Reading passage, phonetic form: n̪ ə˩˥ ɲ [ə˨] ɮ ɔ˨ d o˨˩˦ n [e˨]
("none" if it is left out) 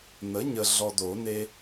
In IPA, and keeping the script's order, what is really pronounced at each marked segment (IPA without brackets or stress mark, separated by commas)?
ə˨, e˦